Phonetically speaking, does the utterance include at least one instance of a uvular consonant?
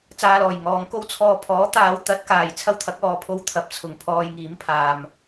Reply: no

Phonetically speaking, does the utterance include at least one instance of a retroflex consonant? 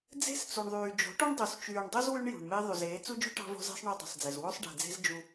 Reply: yes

